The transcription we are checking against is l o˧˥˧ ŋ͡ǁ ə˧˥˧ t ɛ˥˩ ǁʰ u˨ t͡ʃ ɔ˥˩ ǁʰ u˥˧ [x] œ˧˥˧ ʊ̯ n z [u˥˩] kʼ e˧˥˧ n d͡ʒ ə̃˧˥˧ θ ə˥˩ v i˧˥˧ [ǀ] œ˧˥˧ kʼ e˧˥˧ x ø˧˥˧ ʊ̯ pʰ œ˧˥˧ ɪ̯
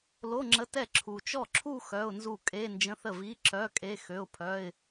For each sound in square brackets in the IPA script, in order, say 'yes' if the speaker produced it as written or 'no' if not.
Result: yes, yes, no

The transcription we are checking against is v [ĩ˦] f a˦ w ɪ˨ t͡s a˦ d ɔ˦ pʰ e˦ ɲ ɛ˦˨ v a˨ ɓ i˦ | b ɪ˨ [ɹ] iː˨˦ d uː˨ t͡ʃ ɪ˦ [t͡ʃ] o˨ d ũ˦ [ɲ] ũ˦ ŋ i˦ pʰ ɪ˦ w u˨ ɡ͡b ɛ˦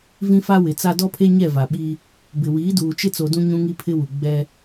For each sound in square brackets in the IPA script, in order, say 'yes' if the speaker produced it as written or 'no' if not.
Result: yes, no, no, yes

